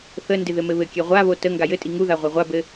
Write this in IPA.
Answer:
θ ə n d ɪ ð ɘ m ɘ β ɘ kʲ ɛ ʁʷ a β o t ə ŋ ɡ a j ɘ tʼ i ŋ u ð a ʁʷ ɛ ʁʷ a b ɘ

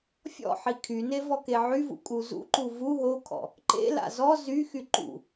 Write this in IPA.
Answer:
fʲ ɔ̰ ħ i kʰ y n e v ɔ k e ʕ y v ṵ kʼ u z ṵ ǃ u v u ɦ o kʰ ɔ̰ | ǃ ḛ l a̰ z ɔ z y x y ǃ ṵ

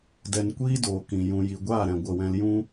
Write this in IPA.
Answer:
d ɛ˧ n kʷ iː˦ d oː˨ k ĩ˨ j ũ˨ j i˨ ɡʷ aː˦˨ ɾ ɛ̃˨ ɡʷ ə˦˨ w ɛ̃˦ l j ũ˦

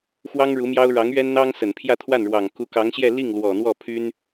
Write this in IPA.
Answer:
x w ɑ˥ ŋ ɻ u˧˥ m j ɑ˥ ʊ̯ ɻ ɑ˧˥ ŋ ɥ ɛ˥ n n̪ ɑ˥ ŋ s ə˨˩ n pʰ j ä˥˧ t̪ʰ w a˥˩ n ɻ w ɑ˨˩ ŋ k u˧˥ k ɑ˧˥ ŋ ɕ j ɛ˥˧ l i˥˩ ŋ l w ɔ˨˩ n̪ w ɔ˥˩ pʰ y˥ n

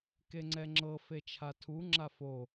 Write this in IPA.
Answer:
k e ŋ͡ǀ ɛ ŋ͡ǁ ɤ f e t͡ʃʰ a tʰ u ŋ͡ǁ a f o

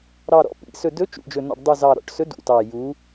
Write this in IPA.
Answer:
ɾ ɑ˨˩ ɾ ɔ̰˨˦ p ḭ˨˩ s ɵ˨˩ d ɵ˨˦ t͡ʃ ṵ˨˩ d͡ʒ ɵ˨˩ n ɔ̰˨˩ ɖ dˤ u˨˩ z ɑ˨˩ ɾ ɔ̰˨˩ ʈ s ɵ˨˦ d ṵ˨˩ t ɑ˨˩ j u˨˦

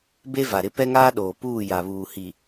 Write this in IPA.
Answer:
b e˦ v a˨ ɾ ɪ˦ p ɛ˦ ŋ aː˦ ɗ oː˨ p uː˦˨ j a˨ β uː˨ h i˨

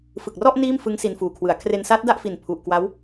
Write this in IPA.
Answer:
f ɯ˨˩ k̚ r ɔ˥˩ ʔ n iː˥˩ m f ɯ˦˥ ŋ s i˧ n f uː˨˩ kʰ w ɯ˩˦ a̯ kʰ r e˧ n s a˦˥ t̚ d a˥˩ ʔ f i˨˩ n pʰ u˨˩ ʔ k w a˦˥ w

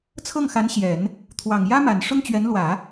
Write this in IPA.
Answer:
t͡sʰ ɤ˥˩ ŋ x a˧˥ n ɕ j ɛ˨˩˦ n | t̪ʰ w ɑ˨˩ ŋ j ä˥ m a˨˩ n ʂ ʊ˥ ŋ t͡ɕ ɥ ɛ˧˥ n l w ä˨˩˦

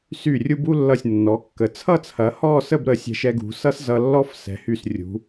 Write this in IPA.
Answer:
s y˧˩ rʲ u˧ b u˥˧ lː ʌ˧˩ sʲ nː ɔ˩˧ kː ə˩˧ t͡sʰ ʌ˥˧ t͡sʰ ɐ˩˧ h ɔ˥˧ s ə˥˧ b ɾ ə˧˩ sʲ ɛ̤˧ ʃ ɛ˧ ɡ ṳ˩˧ s ʌ˥ s z ʌ˧ lː ɔ˥ f s ɛ̤˩˧ h y˧˩ s rʲ ṳ˩˧

